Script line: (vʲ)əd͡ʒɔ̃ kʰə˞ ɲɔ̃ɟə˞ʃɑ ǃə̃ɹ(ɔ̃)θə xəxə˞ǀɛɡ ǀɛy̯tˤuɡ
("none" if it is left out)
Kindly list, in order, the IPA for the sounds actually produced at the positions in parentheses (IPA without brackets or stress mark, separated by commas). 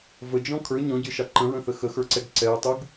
v, ə̃